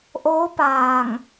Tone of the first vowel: rising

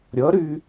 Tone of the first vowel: rising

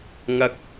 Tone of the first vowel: low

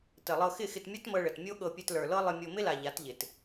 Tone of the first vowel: low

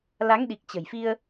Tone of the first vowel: rising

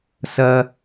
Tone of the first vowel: high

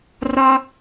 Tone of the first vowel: high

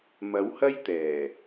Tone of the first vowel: rising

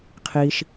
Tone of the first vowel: low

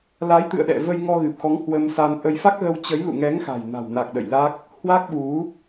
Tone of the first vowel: rising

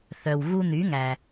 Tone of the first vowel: low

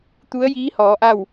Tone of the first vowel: rising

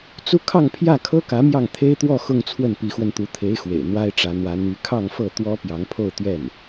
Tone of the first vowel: high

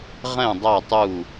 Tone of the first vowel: falling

